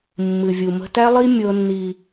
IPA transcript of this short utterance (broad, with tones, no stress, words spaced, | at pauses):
mːɨ˨vʲu˨mə̤˦ tæ˦lˠi˦ mʲɤ˦nːi˦